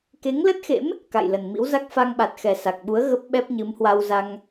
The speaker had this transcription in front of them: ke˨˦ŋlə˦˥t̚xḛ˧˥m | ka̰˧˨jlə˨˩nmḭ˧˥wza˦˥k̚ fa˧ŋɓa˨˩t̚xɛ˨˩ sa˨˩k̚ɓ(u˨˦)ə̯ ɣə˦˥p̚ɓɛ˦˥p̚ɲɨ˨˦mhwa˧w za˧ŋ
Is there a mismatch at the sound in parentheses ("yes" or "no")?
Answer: no